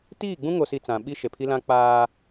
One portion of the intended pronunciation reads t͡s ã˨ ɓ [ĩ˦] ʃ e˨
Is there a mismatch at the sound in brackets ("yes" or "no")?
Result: yes